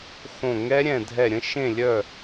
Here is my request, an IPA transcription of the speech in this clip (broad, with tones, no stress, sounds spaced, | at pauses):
x õ˦˨ ŋ ɛ˦˥ ɾʲ ɛ̃˦˨ dʱ ɛ˦˨ ɾʲ ə̃˦˥ ʃ ẽ˦˨ lʲ œ˦˨